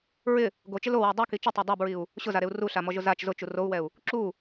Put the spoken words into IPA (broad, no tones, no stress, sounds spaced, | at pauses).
ɹ ɪ | ɡ o t͡ʃ ɪ l o w ɔ dˤ u k i t͡ʃ ʊ tˤ e dˤ a b ɹ i u̯ | ɕ ʊ z a ɾ e u̯ r u ɬ a m ɔ ʒ ʊ z a t͡ʃ z ʊ t͡ʃ u r o u̯ w ɛ u̯ | ǁ u